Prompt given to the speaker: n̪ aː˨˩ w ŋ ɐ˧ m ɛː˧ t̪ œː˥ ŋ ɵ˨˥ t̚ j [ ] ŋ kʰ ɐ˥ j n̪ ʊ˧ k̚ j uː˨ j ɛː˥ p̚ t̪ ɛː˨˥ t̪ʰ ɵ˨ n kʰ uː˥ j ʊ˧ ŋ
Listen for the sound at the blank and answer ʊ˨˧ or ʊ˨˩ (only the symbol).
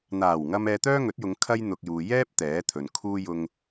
ʊ˨˧